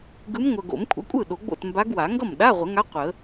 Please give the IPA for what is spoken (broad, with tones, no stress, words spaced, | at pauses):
ɡɯ˧˥mŋʷœ˨ ɡo̰˨˩˦mkʷʰə̰˧˥kʷʼɯ˥˩ ɗo˨˩˦ɡ͡bo̰˥˩tmba˧˥ɡwa˨˩˦ ŋɡʌ˥˩mɗa˧˥˧ʁʷə˨˩˦ŋa˧˥ qʷə˨˩˦